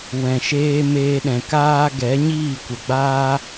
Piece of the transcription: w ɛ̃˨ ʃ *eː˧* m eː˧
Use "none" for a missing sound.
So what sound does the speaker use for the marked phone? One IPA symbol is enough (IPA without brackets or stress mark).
eː˧